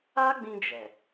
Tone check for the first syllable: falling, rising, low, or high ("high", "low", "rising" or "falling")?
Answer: high